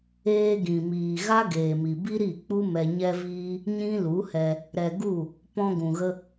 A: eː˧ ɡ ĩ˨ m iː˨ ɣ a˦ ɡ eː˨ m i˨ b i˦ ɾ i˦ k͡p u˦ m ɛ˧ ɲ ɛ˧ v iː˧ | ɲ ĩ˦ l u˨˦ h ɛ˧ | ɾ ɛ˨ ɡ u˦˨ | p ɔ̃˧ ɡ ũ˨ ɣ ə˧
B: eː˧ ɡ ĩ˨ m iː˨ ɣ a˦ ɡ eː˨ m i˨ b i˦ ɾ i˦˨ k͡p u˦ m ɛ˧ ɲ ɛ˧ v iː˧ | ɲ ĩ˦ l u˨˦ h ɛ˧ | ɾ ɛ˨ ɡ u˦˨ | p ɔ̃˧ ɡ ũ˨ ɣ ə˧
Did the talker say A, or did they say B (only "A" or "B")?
B